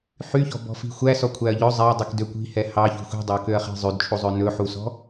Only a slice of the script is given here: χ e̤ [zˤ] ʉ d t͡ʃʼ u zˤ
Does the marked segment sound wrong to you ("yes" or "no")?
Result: no